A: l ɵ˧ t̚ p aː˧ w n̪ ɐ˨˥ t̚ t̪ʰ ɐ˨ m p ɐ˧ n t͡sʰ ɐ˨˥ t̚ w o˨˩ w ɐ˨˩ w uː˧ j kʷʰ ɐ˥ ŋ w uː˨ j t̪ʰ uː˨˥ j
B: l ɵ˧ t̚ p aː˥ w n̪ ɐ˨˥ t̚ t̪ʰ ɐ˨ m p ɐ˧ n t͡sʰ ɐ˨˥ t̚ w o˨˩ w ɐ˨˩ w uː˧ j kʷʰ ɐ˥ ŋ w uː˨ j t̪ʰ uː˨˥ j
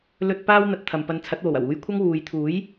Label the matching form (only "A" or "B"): B